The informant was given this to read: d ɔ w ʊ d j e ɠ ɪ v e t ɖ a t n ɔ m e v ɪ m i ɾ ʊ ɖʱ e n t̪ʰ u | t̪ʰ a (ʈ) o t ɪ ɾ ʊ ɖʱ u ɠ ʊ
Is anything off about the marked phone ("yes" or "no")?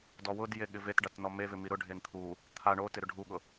yes